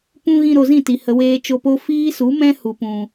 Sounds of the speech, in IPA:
pũ˧ ɣĩ˧ɾo˨zĩ˦˨ti˨ hə˨weː˧t͡ʃo˧po˦ fiː˦su˨˦mɛ̃˦ hu˨pũ˨

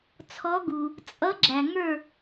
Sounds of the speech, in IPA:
t͡sʰɔ˧˥ɡu˨ | t͡sʼʌ˧˥ɡ͡ǁæ˨ ŋə˞˥˨

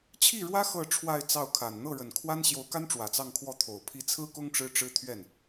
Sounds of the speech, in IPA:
t͡ɕʰi˥˩ɻwä˥ xɤ˥˧ ʈ͡ʂʰwa˥˧ɪ̯t͡sɑ˥˩ʊ̯kʰa˨˩n n̪ɤ˥˩ɻə˨˩nkʰwa˥n ɕjo˧˥ʊ̯ka˥nʈ͡ʂwä˨˩ t͡sɑ˥˧ŋkʰwɔ˥˩t̪ʰo˨˩ʊ̯ pʰi˧˥t͡sʰɹ̩˥kʊ˥ŋ ʈ͡ʂɻ̩˥ʈ͡ʂɻ̩˥t̪ʰɥɛ˥˩n

